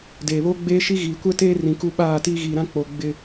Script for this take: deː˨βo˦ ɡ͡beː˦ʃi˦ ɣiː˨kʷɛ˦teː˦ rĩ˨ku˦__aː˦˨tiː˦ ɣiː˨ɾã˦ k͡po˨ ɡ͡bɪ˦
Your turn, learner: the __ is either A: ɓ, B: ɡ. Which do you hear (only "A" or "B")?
A